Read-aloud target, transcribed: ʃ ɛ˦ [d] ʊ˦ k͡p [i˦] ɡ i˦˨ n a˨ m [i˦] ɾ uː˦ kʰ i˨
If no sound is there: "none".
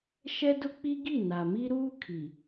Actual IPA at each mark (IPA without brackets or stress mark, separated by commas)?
d, i˦, i˦